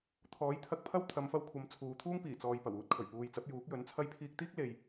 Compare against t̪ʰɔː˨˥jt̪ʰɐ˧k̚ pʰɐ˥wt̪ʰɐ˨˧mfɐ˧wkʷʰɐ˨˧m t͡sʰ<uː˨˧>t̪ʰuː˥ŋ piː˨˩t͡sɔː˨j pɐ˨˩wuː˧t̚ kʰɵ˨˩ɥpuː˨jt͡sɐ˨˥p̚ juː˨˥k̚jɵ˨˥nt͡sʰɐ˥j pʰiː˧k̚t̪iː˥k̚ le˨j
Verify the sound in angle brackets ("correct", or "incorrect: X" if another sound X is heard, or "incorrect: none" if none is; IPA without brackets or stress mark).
correct